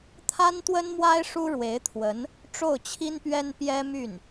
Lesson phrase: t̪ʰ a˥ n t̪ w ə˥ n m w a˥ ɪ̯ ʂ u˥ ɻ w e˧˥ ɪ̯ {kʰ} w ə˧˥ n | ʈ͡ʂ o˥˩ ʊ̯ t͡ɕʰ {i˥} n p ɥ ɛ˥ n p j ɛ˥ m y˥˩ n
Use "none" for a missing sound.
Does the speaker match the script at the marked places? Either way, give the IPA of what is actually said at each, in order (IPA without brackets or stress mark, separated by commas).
t̪ʰ, i˥